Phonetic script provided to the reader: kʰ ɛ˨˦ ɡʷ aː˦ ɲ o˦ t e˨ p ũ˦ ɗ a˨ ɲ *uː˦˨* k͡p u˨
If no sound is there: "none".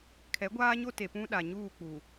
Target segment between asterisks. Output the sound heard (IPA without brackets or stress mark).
uː˦˨